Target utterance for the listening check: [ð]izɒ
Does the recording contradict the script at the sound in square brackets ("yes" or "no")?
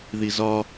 no